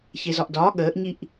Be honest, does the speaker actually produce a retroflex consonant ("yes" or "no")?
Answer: no